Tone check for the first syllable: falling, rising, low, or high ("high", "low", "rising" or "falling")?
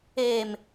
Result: low